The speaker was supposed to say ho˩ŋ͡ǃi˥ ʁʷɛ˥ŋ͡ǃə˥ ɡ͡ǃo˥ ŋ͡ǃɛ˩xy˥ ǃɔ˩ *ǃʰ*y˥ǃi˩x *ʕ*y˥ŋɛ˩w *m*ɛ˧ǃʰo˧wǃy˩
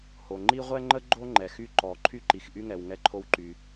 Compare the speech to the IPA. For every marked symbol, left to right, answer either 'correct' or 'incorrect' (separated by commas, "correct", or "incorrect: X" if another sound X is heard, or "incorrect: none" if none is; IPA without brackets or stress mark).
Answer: correct, incorrect: ʔ, incorrect: ŋ